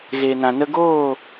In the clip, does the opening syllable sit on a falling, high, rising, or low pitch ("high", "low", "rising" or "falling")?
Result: low